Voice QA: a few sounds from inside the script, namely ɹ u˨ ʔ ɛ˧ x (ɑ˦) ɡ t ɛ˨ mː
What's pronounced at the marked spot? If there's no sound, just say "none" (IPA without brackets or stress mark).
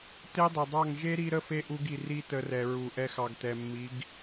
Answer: ɑ˨